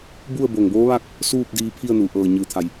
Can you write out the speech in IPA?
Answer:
b u˥˨ ə̯ b o˧˩ ŋ b oː˧˥ ʋ a˥˨ k̚ | s uː˥˨ p̚ d iː˧ pʰ i˥˨ ə̯ n u˩ ʔ ɤː˧˩ ɲ ɯː˩˧ t̪ʰ a˩ j

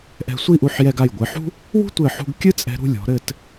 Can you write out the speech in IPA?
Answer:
ʔ ɛ̤˧ sʷ i˥˧ ʔ u˧ ħ j ɛ˧ ɡ a˧˩ j ɡʷ ɨ˩˧ ħ ṳ˥ | w ṳ˥ tʷ ɘ˧˩ ħ ṳ˧ ɡ kʲ ɨ˥ t͡sʼ ɛ̤˧ ɾ ṳ˥˧ lʲ ɔ̤˩˧ ɾ ɘ˥˧ t

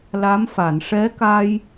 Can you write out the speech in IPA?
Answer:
l a˧˥ m f a˨˩˨ n ʂ ɛ˧˥ k a˧ j

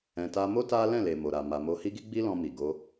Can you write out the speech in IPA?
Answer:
ɛ̃˧ t a˧ m o˦ t a˦ l ɛ̃˦˨ l e˨ m o˨ ɾ a˨ m a˨ m o˧ h i˦ ɡ i˦ ɡ͡b i˦ l ɔ̃˧ m i˨ ɡ o˧

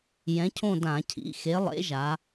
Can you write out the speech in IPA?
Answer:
j ɛ̃˨˥ cʰ õ˦˨ d ã˧˩˧ cʰ ḭ˩˧˩ x e˨˥ lˠ ḛ˨˥ ʒ a˩˧

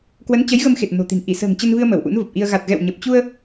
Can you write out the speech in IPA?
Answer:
k w ə˨˦ n t͡ɕ ə˨˦ j ɣ ə˧ m x e˨˩ t̚ n o̤˨˩ t̪ i̤˨˩ n ʔ i˧˩ s ə̤ː˨˩ ŋ t͡ɕ ə˧ n v ɨ˧ ə̯ m ə˧˩ w ʔ ṵ˧˥ n v ə˨˩ p̚ ʔ i˧ ə̯ ɣ a˨˩ t̚ ɣ ɛ̰˧˨ w ɲ ə˨˩ p̚ t͡ɕ u˧ ə̯

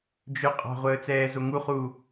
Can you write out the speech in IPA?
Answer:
d͡ʒ ɵ qʼ ɑ̤ ʁʷ əː t͡s ɛː z o ŋ u χ u

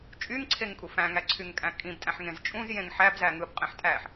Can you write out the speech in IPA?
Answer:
t͡ʃʼ y ŋ ǀʰ e ŋ kʼ u f æ̃ ŋ æ ǀʰ y ŋ kʼ æ̃ kʼ ĩ b tʼ æ̃ ħ ŋ ẽ z t͡ʃʼ ũ z j ẽ ŋ ħ æ b z æ ŋ ɯ b qʼ ẽ ħ tʼ æ ħ

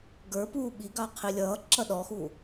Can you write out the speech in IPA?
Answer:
ɡ ə˞ p uː ɓ i ɡ ɑ qʰ i lʲ ʌː ǁ ʌ ɗ ɔ x u

